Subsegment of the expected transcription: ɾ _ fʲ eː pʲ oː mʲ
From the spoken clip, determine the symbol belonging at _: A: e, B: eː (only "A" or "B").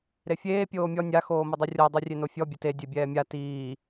A